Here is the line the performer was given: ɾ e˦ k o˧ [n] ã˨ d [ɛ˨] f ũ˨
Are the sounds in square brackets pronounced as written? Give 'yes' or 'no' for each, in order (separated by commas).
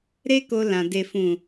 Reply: no, no